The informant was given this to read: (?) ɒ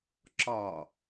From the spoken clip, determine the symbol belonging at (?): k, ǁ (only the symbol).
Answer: ǁ